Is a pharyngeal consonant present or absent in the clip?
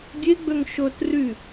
absent